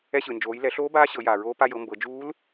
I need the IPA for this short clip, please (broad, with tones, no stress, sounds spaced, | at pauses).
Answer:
ɛ˧ ɕ ɯ˩ n d͡ʒ oː˩˧ j l ɛ˩˧ ɬ oː˧˥ b aː˧˥ ɕ ɤ˩˧ j aː˩ ɹ oː˧˥ p a˧ j ɤ˩˧ m b ɤ˩˧ d͡ʒ uː˧˥ l